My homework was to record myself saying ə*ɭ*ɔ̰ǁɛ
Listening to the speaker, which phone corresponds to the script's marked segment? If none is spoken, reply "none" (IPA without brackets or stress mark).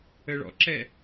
ɭ